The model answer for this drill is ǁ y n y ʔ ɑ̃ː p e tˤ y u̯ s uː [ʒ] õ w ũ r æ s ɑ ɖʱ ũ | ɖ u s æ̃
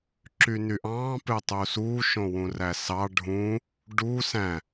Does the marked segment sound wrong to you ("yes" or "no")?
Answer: yes